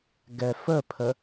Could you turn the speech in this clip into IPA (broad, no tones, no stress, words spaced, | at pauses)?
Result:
ɡɛfəpʰə